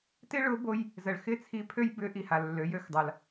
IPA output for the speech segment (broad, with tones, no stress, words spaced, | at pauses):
tɪ˥ɭʊ˧˥bo˧j | zə˩ɭ xɪ˥t͡sʰi˧ pʰø˥jbʏ˧˥ʔi˩ ha˩lːø˩˧jø˩˧xdˤa˩l